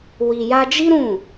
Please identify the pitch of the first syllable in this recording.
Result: low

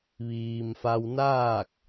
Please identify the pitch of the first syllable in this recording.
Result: low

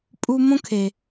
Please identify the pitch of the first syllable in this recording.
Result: high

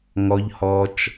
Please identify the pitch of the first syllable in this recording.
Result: high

